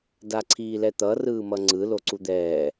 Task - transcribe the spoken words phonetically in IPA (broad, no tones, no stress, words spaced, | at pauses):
daǀʰiːlɛt̪ʌ rɯːmʌŋ͡ǀɯ loǀud̪ɛː